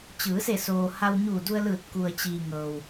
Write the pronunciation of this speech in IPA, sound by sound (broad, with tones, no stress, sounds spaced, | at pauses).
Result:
t͡ɕ ɯː˩˧ s e˧˩ s oː˩ h a˧ w ɲ uː˧˩ d u˧ ə̯ l ɯː˧˩ t̚ k u˩ ə̯ t͡ɕ iː˩ ŋ ɤː˩ w